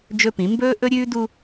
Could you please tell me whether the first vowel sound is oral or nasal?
oral